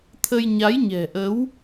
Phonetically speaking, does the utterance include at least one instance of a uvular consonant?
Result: no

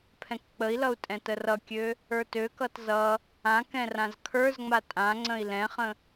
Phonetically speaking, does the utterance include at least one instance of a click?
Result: yes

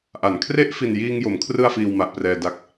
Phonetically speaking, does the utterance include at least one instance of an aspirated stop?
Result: yes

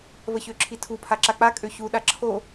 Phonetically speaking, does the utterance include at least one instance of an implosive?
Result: yes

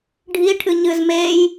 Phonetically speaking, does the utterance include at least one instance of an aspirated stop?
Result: yes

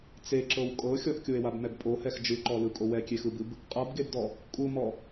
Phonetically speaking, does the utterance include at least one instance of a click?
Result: yes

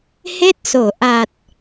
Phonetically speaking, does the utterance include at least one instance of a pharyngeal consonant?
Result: no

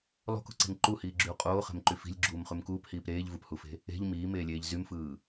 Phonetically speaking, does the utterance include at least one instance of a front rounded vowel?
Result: yes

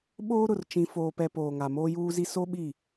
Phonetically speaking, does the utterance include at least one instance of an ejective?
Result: no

